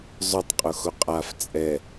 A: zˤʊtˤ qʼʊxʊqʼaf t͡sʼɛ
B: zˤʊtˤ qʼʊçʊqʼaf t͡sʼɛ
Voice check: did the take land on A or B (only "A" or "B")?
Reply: A